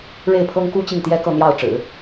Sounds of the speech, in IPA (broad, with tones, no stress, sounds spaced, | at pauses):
ɻ e˥˩ ɪ̯ pʰ ɤ˥ ŋ k u˥ t͡ɕ i˥˩ ŋ t̪ j ɛ˥ k ɤ˥˧ n̪ j ɑ˥˩ ʊ̯ ʈ͡ʂ ɻ̩˨˩˦